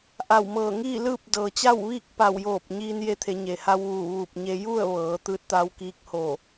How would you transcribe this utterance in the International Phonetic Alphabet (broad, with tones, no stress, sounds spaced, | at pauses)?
ʔ a˧˩ w m ɤː˧˩ ŋ iː˥˨ l ɯː˥˨ p̚ d ɤː˩ t͡ɕ a˥˨ w ʋ iː˥˨ k̚ p a˧˩ w j oː˧˩ p̚ ɲ iː˧ n j e˧ t̪ʰ e˩˧ ɲ e˩ h a˧ w ʋ uː˧˩ ʋ uː˧˩ p̚ ɲ e˧ j u˥˨ ə̯ ʋ ɤː˩˧ t̪ ɯː˧˥ t̚ t̪ a˧˥ w k iː˧˥ k̚ h oː˧˩